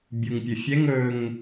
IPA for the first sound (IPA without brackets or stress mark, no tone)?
bʲ